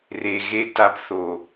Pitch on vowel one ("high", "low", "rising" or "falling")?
low